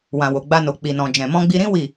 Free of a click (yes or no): yes